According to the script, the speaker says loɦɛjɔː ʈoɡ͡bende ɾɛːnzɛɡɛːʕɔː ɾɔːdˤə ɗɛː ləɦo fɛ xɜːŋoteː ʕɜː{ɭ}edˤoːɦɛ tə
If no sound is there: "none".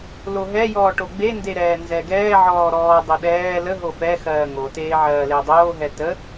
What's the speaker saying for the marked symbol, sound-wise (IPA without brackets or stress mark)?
l